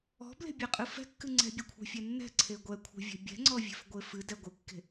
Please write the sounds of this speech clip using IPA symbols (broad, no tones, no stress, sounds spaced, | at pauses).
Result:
ɔ̤ b l e̤ bʲ ɛ qʼ ɨ f ɛ̤ kː ɨ ŋ͡ǀ ɛ̤ bʲ ɛ kʷʰ ɛ̤ fʲ ɛ nː ɛ̤ ǀʰ e ɡʷ ɛ kʷʰ ɛ̤ vʲ ɛ̤ bʲ ɛ̤ ŋ͡ǀ ɔ vʲ e̤ f ɡʷ e f ɨ d ɛ ɡʷ ɨ kː e̤